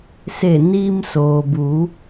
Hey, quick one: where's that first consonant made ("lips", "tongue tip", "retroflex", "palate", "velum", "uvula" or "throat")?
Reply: tongue tip